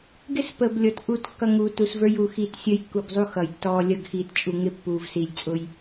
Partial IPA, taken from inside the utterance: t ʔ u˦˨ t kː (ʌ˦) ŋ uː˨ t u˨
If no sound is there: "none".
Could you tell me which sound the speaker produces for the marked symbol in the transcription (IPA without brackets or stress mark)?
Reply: ʌ˦